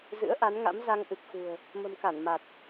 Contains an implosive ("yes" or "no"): no